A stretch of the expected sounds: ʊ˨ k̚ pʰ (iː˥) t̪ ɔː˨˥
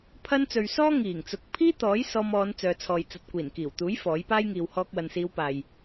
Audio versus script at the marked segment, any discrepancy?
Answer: no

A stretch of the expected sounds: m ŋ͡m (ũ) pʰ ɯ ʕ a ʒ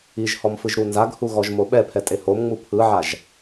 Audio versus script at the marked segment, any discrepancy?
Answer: yes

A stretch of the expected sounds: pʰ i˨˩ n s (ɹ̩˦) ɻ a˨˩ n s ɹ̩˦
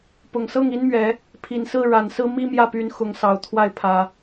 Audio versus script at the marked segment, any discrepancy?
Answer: yes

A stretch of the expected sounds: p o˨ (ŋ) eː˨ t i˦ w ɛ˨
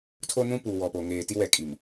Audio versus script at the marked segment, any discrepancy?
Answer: no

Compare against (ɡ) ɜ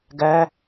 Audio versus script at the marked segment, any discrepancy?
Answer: no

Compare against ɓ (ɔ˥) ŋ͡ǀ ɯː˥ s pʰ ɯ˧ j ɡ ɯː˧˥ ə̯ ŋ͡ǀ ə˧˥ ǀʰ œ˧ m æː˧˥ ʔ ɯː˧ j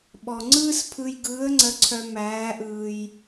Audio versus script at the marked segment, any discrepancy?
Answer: yes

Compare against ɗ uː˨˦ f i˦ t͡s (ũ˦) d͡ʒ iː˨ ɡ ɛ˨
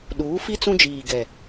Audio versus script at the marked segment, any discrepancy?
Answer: no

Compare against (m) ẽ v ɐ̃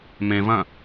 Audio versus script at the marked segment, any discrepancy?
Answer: no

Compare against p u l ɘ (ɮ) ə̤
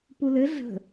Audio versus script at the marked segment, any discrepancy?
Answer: no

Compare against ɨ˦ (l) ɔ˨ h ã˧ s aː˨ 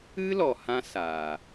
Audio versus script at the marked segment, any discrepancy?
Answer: no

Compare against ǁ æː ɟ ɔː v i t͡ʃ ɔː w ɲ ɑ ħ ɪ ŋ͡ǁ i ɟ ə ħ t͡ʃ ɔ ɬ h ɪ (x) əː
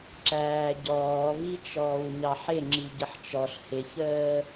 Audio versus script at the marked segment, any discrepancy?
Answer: yes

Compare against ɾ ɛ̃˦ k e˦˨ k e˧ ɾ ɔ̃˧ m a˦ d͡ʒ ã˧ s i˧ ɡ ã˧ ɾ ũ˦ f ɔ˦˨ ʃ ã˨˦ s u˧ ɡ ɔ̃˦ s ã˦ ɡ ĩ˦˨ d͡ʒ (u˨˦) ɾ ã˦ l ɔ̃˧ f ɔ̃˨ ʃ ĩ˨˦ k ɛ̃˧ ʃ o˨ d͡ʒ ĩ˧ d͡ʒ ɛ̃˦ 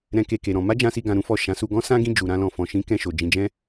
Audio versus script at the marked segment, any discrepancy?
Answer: yes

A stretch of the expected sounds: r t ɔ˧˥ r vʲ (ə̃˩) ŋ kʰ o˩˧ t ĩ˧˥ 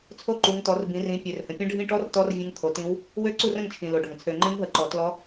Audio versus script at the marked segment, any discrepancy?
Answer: yes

